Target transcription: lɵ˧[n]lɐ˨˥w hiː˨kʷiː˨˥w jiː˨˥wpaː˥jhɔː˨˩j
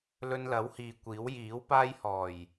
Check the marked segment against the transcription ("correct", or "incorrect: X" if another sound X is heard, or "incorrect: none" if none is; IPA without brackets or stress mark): correct